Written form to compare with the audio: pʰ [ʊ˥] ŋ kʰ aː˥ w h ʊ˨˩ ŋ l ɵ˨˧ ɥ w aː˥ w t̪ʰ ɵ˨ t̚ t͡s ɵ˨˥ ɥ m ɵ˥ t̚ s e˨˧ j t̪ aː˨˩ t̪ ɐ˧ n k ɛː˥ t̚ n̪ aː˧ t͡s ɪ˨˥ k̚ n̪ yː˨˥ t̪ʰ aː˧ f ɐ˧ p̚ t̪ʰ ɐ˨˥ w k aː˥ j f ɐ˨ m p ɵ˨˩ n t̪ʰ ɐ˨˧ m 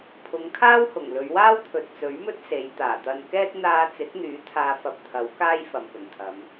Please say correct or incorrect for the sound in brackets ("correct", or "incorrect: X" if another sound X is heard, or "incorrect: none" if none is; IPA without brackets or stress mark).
incorrect: ʊ˨˧